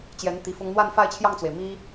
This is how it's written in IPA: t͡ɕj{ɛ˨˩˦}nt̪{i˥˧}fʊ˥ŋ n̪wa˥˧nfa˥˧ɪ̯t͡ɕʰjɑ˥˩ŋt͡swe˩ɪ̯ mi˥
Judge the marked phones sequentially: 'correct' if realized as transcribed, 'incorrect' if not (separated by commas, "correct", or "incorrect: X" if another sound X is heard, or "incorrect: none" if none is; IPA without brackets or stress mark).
incorrect: ɛ˧˥, incorrect: i˧˥